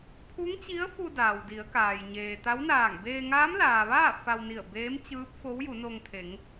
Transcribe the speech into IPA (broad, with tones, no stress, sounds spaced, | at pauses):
pʰ u˧˥ ŋ t͡ɕ i˧˥ ə̯ f u˧ d aː˩ w d i˩˧ ə̯ k aː˩ j ɲ eː˩ t̪ a˧˥ w n aː˧˩ ŋ b eː˧ ŋ aː˧˥ m l aː˩ ʋ aː˥˨ f a˧ w n i˧˩ ə̯ b eː˧˥ m t͡ɕ ɯː˧˥ p̚ f o˧˥ w j u˩˧ n o˧ ŋ t̪ʰ e˩˧ ŋ